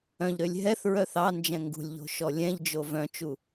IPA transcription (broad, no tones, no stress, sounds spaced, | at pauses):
œ̃ ʎ ɾ ø lʲ ɦ ɛ θ ɹ œ θ ɑ n d͡ʒ ɛ̃ ŋ ɡ ṳ lʲ ʎ o̤ ʃ ɔ lʲ ɛ̃ ʎ d͡ʒ o v œ̃ t͡ʃ u